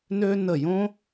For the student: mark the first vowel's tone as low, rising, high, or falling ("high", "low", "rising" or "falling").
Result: high